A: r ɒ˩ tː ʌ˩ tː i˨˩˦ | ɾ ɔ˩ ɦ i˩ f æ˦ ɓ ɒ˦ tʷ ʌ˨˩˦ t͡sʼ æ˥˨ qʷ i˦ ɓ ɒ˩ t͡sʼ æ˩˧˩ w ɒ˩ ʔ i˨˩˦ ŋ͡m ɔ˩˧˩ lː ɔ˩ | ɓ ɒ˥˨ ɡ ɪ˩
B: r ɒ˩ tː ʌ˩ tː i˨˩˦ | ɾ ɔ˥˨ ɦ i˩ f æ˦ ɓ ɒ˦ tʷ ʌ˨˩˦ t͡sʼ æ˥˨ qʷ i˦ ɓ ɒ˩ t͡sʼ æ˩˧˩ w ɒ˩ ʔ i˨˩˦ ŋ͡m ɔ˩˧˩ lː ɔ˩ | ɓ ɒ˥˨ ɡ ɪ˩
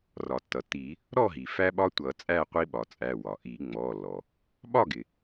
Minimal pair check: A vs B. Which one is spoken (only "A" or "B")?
B